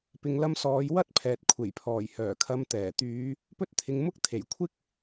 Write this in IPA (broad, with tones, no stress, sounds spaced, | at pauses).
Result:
p ɪ˨ ŋ l ɐ˧ m s ɔː˨˧ j w ɐ˥ t̚ pʰ ɛː˨ t̚ kʷʰ e˨˩ j pʰ ɔː˨˩ j h œː˨˩ kʰ ɐ˨˧ m t̪ ɛː˨˩ t̪ yː˨˧ | p ɵ˧ t̚ t̪ʰ ɪ˨ ŋ m ʊ˥ k̚ t̪ʰ e˨˩ j kʷʰ ɪ˥ k̚